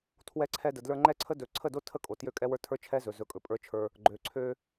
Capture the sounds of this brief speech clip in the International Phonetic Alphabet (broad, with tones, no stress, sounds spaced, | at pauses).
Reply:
tʰ w ɛ˧ ǀʰ ɛ˧ d ə˨ d l ə˞˧ ŋ͡ǃ ɛ˦ ǀʰ ə˦ d ɵ˧ ǀʰ ə˦˨ d o˦ tʰ ə˦˨ kʼ o˨ t j ø˦ kʼ ɛ˦ w ə˞˦ tʰ ə˞˦ t͡ʃʰ ɛ˦ z ɵ˨ z ɵ˧ kʼ ɵ˧ pʼ ə˞˦ t͡ʃʰ ə˞˧ | ɡ͡ǃ ø˨ ǀʰ ø˧